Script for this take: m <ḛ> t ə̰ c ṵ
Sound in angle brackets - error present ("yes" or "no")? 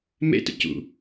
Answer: no